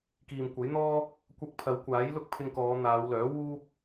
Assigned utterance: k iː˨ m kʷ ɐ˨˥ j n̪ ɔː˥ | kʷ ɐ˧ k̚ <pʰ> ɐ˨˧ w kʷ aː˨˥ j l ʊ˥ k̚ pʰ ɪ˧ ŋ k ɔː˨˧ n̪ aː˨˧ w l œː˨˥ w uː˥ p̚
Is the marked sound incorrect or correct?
correct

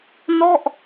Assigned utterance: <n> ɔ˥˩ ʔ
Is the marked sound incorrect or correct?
correct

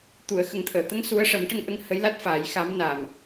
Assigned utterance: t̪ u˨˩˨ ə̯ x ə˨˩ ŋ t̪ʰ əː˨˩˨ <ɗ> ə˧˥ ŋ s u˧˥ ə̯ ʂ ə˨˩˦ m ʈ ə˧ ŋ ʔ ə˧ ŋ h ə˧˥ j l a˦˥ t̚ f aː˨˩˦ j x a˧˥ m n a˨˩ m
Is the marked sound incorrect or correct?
incorrect: t̪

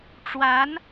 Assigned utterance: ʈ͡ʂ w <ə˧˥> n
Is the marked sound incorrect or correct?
incorrect: a˧˥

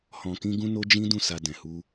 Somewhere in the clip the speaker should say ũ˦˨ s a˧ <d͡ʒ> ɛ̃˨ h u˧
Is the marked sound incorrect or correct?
incorrect: d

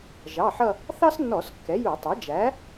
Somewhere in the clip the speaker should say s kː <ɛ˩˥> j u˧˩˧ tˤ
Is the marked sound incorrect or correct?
correct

